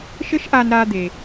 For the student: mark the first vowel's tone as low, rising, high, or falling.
high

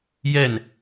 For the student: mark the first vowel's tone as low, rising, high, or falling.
falling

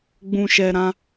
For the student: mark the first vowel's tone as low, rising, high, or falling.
low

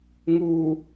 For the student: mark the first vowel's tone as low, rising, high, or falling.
low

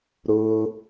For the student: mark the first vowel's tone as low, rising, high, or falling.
high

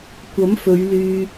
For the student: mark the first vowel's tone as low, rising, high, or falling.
rising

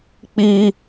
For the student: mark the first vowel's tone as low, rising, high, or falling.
high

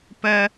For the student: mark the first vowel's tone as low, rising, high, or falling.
high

